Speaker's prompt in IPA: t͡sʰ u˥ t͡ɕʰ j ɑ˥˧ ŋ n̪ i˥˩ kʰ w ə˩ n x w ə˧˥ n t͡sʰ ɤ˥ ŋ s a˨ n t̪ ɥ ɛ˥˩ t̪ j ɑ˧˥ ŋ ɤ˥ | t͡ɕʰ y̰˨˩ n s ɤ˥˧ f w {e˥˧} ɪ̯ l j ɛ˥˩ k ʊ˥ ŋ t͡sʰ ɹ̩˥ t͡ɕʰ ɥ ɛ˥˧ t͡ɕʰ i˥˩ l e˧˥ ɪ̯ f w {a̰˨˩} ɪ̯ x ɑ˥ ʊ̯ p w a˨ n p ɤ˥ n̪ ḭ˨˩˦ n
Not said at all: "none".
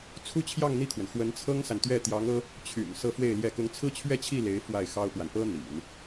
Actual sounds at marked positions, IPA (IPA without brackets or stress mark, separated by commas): e˥˧, a˥˩